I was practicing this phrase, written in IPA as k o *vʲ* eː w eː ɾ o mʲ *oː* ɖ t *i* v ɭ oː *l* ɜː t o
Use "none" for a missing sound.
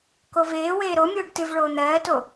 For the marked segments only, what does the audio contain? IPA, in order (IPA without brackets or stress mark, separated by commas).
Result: v, oː, ɨ, n̪